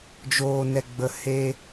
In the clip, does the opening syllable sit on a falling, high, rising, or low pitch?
low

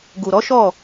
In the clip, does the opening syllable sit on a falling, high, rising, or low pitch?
low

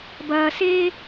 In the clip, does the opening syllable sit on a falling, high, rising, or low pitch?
low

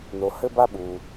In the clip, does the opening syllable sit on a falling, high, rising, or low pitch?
low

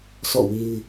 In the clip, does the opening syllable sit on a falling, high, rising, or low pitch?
falling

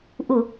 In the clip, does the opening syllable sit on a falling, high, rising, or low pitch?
low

